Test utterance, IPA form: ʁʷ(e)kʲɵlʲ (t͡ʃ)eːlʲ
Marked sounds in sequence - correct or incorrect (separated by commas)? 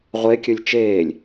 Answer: correct, correct